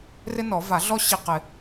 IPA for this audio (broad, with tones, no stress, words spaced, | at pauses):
rɪ˥nɔ˨˩˦ va˨˩˦ɮɔ˥ ɕi˧˥˧qɪ˨˩˦